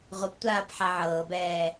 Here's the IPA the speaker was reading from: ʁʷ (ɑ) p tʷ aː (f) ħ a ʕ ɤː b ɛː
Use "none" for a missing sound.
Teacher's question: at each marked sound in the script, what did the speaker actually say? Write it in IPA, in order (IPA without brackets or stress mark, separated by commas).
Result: ə, p